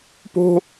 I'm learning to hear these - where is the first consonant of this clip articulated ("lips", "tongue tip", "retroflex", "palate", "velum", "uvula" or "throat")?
lips